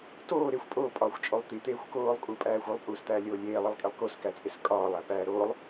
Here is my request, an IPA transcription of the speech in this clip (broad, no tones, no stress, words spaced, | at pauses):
toː ɾexʷ pʼoːpʼɒːxʷt͡ʃʼolˠ t̪it̪eːxʷ koːlˠkʼupʼæːxʷ olˠpʼuːst̪æːlʲoː lʲeːlˠilˠkʼelˠ koskæt͡sʼes kʼɒːlˠæpæː ɾoːlˠ